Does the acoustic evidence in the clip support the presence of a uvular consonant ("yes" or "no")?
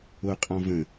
yes